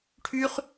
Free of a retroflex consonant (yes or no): no